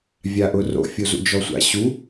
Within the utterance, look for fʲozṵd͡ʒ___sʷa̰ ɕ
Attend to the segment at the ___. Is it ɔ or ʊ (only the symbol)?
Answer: ɔ